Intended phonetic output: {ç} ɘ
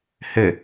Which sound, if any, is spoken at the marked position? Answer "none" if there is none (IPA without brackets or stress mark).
h